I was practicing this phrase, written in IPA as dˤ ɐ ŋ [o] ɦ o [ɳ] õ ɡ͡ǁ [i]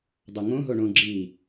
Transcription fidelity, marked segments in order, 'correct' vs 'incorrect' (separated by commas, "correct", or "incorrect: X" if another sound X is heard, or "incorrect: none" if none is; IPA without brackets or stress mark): incorrect: õ, correct, correct